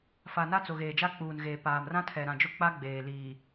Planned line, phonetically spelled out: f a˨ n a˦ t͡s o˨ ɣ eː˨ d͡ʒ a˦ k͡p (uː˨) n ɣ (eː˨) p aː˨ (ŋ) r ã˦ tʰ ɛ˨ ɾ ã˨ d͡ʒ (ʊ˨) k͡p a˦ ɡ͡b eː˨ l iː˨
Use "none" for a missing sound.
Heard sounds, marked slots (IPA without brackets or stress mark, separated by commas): uː˨, eː˨, m, ʊ˦